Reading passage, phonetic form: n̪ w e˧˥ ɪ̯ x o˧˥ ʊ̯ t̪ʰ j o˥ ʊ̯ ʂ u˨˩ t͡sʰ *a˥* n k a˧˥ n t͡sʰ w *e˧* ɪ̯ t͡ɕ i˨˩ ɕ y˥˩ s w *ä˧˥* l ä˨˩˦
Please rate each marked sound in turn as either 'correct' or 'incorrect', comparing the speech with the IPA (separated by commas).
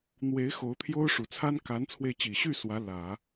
correct, correct, correct